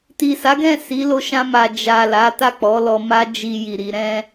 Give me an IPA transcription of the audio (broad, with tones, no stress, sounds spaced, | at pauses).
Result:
t i˨ s a˨˦ ɡ ɛ̃˦˨ s i˨˦ l o˧ ʃ ã˧ m a˨ d͡ʒ a˨ l a˨˦ t a˦˨ k͡p ɔ˨˦ l ɔ˧ m a˦ d͡ʒ i˧ j i˨ ɾ i˧ ɾ ɛ̃˧